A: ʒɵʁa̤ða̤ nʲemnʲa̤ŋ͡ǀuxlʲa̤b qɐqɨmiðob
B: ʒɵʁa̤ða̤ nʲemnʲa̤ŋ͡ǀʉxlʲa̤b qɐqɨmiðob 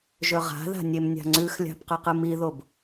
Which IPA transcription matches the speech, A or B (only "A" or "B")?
B